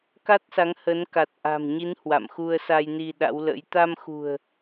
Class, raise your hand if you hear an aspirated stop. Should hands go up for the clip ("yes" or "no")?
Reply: no